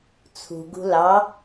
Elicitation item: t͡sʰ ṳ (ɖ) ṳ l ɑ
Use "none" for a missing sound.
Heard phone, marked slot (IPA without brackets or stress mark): ɡ